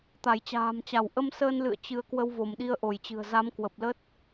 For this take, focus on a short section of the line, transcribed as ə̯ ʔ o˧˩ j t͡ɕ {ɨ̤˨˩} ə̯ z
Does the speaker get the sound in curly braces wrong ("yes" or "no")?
no